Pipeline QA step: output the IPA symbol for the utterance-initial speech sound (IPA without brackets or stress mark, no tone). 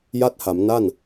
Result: j